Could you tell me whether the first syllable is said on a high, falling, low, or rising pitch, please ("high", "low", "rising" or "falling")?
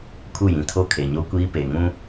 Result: falling